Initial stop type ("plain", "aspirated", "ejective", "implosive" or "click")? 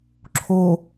click